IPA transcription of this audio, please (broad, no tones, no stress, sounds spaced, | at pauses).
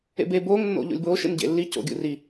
ḛ b e b oː ŋ nː o̰ ʎ o̰ lʲ b oː ʃ ḛ n ɟ ḛ lː i c o̰ ɡʲ ṵ r i